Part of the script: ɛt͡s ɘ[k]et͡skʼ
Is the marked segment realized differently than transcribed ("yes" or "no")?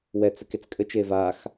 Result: no